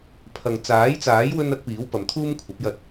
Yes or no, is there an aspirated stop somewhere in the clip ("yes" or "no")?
yes